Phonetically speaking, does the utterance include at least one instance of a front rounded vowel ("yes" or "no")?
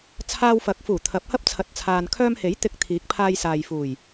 yes